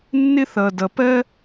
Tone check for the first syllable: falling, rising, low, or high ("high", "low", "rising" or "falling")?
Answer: high